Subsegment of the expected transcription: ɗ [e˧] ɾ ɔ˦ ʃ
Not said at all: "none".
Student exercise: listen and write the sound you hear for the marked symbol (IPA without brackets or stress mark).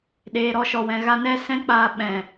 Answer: eː˧